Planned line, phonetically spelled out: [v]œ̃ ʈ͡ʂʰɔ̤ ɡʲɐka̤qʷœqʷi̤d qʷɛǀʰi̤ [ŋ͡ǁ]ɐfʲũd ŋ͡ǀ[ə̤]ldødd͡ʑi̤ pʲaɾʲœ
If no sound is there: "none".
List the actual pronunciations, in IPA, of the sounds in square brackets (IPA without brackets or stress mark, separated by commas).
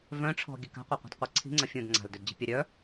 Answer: v, ŋ͡ǀ, a̤